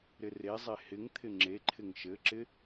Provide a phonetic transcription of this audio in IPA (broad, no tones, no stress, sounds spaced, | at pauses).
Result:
ɾ ɪ r e zˤ e h ɪ ŋ t̪ʰ ɪ ŋ͡ǁ e ǃʰ ɪ ŋ ʃ ɘ ǁ ɪ